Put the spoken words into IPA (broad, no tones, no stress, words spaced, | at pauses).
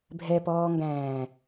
bʱɛpɔːŋɡæ̃ː